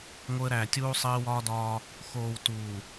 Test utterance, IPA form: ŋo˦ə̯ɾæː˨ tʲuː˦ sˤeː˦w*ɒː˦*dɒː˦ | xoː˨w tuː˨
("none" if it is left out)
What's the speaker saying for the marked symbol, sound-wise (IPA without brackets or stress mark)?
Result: ɒː˦